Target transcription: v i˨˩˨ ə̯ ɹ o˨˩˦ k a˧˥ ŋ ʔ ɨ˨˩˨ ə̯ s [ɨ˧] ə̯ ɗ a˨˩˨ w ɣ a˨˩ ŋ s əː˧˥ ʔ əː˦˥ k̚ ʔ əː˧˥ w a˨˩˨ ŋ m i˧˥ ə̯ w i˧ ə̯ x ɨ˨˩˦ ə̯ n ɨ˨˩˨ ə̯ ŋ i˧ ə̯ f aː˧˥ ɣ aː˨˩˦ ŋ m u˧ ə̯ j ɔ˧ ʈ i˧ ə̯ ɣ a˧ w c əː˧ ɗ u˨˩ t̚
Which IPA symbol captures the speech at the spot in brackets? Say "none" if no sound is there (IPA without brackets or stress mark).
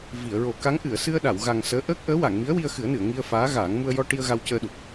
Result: ɨ˧